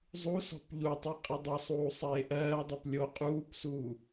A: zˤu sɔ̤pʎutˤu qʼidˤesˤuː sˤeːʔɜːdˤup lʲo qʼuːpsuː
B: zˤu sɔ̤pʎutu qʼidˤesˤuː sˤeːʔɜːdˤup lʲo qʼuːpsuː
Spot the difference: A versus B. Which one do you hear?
A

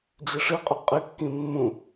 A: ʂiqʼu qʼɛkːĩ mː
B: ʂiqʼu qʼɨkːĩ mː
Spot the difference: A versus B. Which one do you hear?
B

